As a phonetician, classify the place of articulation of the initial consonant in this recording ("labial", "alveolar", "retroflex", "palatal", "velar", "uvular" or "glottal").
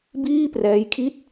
labial